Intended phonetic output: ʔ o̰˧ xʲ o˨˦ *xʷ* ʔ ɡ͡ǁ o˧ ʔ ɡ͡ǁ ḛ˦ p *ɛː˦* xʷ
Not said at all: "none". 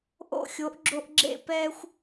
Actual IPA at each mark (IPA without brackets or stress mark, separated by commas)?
none, ɛː˦